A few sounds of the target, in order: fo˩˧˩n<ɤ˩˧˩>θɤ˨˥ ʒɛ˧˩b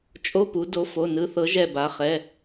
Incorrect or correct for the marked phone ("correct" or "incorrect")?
incorrect